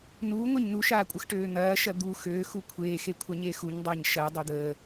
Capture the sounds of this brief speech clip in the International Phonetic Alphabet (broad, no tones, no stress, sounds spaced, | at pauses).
n uː ŋʷ e ɲ n u ʃ aː kʷʼ ə x ʈ øː n̪ ɐː ʃ ɐ d̪ u x øː x u kʷʰ eː x e kʷʰ a ɲ eː x u ɲ dˤ ɐː ɲ ʃ ɐ dˤ ø d̪ əː